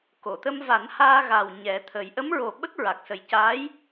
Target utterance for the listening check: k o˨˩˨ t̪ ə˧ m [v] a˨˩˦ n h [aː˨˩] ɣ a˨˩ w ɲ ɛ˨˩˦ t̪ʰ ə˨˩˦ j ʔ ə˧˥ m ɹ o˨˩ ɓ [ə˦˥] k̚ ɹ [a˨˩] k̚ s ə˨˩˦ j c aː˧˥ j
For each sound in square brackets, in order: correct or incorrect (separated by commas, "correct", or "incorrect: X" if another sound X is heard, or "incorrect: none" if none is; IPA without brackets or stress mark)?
correct, incorrect: aː˧, correct, correct